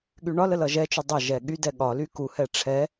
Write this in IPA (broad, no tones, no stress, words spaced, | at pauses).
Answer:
ɠyɳɒ ləlʌʒɛt͡ʃy dˤə ʒɛɠy dɛɠɒ lyku hɛʈ͡ʂʰɛ